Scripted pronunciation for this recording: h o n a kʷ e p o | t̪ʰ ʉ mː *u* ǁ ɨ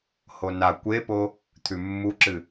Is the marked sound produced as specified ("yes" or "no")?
yes